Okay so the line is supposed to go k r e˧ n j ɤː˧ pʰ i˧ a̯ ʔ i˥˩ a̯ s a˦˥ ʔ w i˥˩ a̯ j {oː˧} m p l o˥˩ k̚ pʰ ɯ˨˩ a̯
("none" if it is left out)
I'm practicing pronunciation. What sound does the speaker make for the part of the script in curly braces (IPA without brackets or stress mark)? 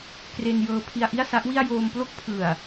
oː˧